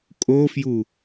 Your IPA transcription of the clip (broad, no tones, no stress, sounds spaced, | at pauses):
kʼ o f j u